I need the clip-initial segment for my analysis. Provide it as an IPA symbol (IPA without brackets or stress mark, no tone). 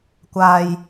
kʷ